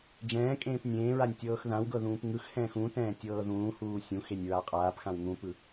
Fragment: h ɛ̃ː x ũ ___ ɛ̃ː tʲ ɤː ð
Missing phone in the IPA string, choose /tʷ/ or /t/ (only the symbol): t